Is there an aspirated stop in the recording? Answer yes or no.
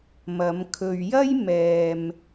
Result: yes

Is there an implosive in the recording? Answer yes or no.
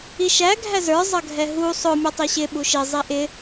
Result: yes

